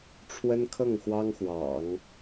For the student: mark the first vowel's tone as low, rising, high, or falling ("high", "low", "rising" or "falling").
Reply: high